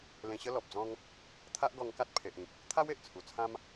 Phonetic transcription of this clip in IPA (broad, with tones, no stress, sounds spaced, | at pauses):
l ẽ˧ ɕ ə˦ l ɔ˨ p̚ d͡z ɔ̃˦ ŋ | t̪ʰ a˦ ʔ ɡ ɔ˧ ŋ k a˦ t̚ pʰ e˨ ʔ ĩ˨ k̚ | t̪ʰ a˦ w e˨ ʔ t͡sʰ u˨˩ t͡sʰ ã˦ m